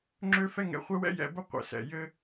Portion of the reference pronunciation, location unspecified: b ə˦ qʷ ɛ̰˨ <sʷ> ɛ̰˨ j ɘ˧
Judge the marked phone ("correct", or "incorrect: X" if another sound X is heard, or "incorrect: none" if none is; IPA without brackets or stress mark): incorrect: s